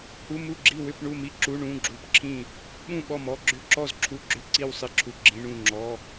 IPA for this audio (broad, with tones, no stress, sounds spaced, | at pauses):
h u˧˥˧ m u˥˨ ɡ͡ǁ i˥˨ w ʏ˥˨ p ɳ u˥˨ m i˥˨ ǁ u˧˥˧ ɳ ũ˧˥˧ ɡ͡ǁ u˧˥˧ p ǁʰ ĩ˥˨ | ɓ ũ˥˨ ɓ ɔ˥˨ m ɔ˧˥˧ ɡ͡ǁ ʏ˥˨ ǁ ɔ˥˨ z ǁʰ u˧˥˧ ɡ͡ǁ ʏ˧˥˧ ǀ i˥˨ w sˤ i˥˨ ǁʰ u˧˥˧ ɡ͡ǁ ĩ˧˥˧ ɳ ũ˥˨ ŋ͡ǁ ɔ˧˥˧